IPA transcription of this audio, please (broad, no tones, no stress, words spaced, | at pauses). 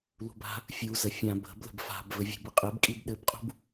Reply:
lṳba̤ | fʲu zəfʲã bə̤blə̤b fa̤bvɘ vʲṳbəqʼɘb kʼibɗɘbqʼṳb